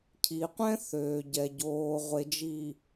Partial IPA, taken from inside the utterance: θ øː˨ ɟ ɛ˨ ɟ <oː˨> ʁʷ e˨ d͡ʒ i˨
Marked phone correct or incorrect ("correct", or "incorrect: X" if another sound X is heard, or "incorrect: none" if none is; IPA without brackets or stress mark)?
correct